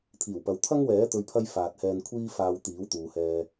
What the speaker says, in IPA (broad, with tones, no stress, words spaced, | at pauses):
t̪ʰiː˨˩wpɐ˨w t̪ʰɐ˥ŋwɛː˨˥ t̪ɵ˨ɥpʰɐ˧j faː˨t̚hɛː˧nkʷʰiː˥ faː˧wt̪iː˨˥wt̪uː˨hɛː˧